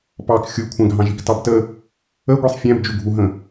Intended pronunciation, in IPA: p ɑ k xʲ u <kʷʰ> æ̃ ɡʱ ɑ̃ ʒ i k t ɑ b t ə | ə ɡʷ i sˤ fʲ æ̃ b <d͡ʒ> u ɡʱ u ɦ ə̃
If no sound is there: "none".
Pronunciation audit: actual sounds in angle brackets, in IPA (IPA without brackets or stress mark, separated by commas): kʷʰ, d͡ʒ